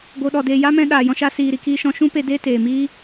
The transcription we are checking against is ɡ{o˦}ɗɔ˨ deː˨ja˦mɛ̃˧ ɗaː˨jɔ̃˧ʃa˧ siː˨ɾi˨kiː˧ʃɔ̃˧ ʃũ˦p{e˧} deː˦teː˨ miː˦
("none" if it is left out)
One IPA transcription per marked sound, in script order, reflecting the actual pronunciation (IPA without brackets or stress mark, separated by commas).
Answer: o˨, e˧